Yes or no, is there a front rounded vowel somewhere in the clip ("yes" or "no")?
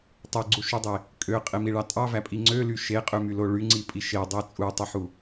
yes